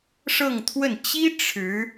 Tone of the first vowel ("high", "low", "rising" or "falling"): falling